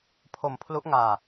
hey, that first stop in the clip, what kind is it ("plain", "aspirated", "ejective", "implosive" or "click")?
aspirated